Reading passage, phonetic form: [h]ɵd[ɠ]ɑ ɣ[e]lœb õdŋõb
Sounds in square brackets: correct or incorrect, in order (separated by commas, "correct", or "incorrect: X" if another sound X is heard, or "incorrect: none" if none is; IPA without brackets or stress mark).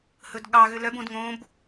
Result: correct, correct, incorrect: ø